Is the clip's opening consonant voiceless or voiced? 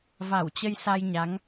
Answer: voiced